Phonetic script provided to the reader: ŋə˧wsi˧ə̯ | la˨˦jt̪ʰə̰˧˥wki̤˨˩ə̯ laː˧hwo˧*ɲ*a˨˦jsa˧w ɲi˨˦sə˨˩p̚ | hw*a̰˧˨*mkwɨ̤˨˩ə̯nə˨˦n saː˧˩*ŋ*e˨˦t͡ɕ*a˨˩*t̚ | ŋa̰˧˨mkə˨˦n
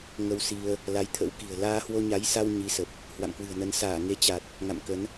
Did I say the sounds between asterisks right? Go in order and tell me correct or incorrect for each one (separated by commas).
correct, correct, correct, correct